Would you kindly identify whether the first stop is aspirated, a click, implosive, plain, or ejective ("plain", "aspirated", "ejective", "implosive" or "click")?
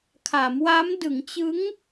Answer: aspirated